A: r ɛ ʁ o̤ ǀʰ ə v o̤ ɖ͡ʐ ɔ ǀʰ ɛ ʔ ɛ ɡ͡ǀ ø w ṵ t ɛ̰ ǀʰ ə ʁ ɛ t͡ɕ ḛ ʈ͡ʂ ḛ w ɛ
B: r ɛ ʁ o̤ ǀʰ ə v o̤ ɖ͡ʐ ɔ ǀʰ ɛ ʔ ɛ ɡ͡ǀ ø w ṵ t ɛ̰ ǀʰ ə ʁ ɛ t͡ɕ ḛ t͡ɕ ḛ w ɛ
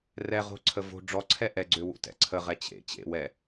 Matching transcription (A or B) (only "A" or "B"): B